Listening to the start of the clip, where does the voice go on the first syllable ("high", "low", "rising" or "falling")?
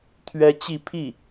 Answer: high